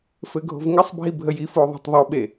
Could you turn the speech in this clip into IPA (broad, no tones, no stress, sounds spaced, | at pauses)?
f ɘ ɡʱ o̤ v ŋ ɪ sˤ bʱ i bʱ ə j i f o ðˤ o̤ tˤ ðˤ u ɓ e